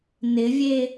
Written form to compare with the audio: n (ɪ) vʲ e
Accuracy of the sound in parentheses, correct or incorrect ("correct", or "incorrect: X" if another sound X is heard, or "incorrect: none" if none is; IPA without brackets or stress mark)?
correct